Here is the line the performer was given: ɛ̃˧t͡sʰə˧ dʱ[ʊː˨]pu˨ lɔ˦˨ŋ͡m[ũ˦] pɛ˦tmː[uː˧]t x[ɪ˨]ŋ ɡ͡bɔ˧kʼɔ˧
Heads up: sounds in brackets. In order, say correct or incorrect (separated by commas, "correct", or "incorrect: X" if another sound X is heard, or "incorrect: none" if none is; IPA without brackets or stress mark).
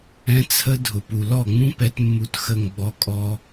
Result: incorrect: ʊ˨, correct, incorrect: u˧, incorrect: ə˨